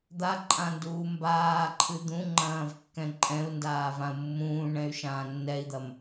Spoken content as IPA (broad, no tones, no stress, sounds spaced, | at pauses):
d̪ a ǃʼ ã n d uː m b aː ǃʰ ɨ d̪ ũ ŋ͡ǃ ɐ̃ː v kː ɛ̃ ǃʼ ɛ̃ u̯ n d aː v ã u̯ mː ũː ɳ ɛ̃ y̯ ʃ ãː nː ɛ i̯ d̪ ɐ m